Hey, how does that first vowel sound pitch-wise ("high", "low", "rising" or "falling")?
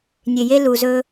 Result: low